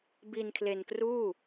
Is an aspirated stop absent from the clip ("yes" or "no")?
no